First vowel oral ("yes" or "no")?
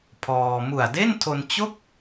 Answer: yes